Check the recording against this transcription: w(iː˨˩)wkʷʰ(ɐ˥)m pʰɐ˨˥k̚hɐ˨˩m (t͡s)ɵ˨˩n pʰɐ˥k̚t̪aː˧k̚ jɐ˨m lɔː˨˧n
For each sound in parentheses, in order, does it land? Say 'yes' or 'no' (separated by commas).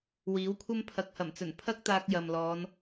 no, yes, yes